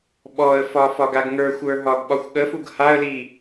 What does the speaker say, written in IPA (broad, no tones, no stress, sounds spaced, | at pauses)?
ɓ ɔ ə̯ f ɒ f ɒ ɡ a ɡ ŋ ə˞ xʷ ə˞ ɦ ɒ ɡ ɓ ɒ xʷ ɠ ə f u ɡ h a ə̯ l i